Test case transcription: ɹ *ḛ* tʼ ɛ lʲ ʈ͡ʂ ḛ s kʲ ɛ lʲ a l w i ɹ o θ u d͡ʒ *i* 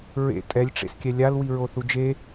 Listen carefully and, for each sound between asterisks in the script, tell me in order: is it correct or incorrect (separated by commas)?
correct, incorrect